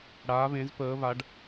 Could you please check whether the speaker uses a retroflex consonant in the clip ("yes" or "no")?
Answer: yes